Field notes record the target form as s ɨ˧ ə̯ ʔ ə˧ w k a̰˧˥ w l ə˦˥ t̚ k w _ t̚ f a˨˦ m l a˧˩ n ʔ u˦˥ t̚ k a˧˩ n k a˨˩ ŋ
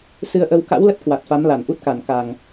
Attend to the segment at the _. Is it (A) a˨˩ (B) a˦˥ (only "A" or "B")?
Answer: A